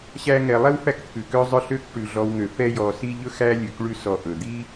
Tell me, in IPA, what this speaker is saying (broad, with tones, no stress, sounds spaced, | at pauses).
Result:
ɕ æ˦ ŋ ɛ˨ lˠ ɛ˦ w f æ˥ k t̪ʰ ʉ˩ k ø˦ zˤ œ˦ ɬ ø˦ k ʈ ʉ˩ ɮ ɔ˨ w ŋ ø˩ f ɛ˦ j ɔ˨ s i˦ ʎ ɵ˥ x æ˥ lʲ ʉ˩ k ɭ ʉ˦ s ɔ˨ ʔ ɵ˩ d̪ i˥